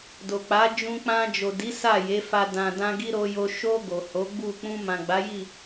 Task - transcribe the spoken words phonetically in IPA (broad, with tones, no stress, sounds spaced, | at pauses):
d o˨ k͡p a˨˦ d͡ʒ ũ˧ k͡p ã˧ d͡ʒ o˨ d i˨˦ s a˦˨ j e˨˦ f a˧ d ã˨ d ã˧ ɡ i˦ ɾ o˧ j o˧ ʃ o˧ ɡ o˨ h o˨˦ ɡ͡b u˦˨ k͡p ũ˧ m ã˨ ɡ͡b a˨˦ j i˦˨